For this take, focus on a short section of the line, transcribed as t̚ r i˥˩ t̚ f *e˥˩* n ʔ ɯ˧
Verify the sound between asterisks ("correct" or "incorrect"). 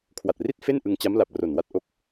correct